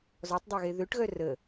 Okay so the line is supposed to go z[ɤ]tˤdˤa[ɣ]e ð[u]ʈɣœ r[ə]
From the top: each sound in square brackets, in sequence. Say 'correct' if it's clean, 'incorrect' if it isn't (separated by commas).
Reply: incorrect, correct, incorrect, correct